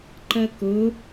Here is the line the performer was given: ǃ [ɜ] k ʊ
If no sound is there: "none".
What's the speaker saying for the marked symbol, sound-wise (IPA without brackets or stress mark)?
ɜ